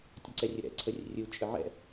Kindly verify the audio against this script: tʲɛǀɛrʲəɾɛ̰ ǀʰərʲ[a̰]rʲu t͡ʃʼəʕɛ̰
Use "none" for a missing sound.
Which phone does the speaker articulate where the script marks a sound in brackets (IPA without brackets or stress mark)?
ə̰